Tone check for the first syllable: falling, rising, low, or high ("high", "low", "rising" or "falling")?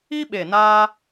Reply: high